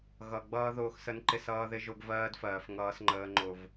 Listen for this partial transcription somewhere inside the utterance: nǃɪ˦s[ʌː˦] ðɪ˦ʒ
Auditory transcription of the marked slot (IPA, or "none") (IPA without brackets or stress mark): ʌː˦